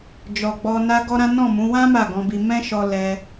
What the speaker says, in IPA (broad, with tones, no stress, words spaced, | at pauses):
d͡ʒɔ˨ɡ͡bɔ˧ na˦ɡɔ˦ɾã˦ nɔ̃˦˨mũ˨˦ wã˦ ma˦˨ɡɔ̃˧bi˧ mɛ̃˦ʃɔ˧ lɛ˧